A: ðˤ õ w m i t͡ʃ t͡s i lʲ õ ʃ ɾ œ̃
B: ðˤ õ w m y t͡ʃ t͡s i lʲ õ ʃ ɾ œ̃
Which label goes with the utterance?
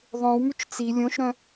B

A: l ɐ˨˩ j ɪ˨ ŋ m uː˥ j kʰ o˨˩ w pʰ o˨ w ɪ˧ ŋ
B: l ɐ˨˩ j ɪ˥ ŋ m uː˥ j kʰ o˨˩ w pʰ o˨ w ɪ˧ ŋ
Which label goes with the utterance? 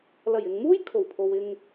A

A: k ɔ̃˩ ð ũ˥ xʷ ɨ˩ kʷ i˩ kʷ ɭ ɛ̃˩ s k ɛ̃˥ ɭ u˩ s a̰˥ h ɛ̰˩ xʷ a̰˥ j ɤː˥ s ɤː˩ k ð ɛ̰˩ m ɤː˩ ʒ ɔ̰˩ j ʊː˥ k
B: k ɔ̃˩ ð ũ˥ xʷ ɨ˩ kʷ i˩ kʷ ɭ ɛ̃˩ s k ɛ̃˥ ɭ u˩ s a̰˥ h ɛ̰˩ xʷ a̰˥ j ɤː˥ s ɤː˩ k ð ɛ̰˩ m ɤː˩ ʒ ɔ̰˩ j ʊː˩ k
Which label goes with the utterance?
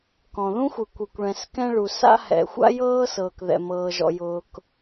B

